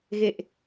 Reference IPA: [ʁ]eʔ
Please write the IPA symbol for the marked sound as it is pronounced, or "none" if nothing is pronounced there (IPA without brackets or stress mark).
ɣ